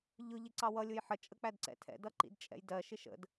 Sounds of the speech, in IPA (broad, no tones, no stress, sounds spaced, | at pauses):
ʎ ʊ ʎ ɪ ǀ ɑ w ʌ lʲ ʊ j ħ ə t͡ʃʼ ə k͡p æ d ǀ ɛ̰ tʰ ɛ̰ d ʌ ǃ ḭ d t͡ʃʼ ɛ̰ j d ɜ ʃ ɪ ʃ ə̰ d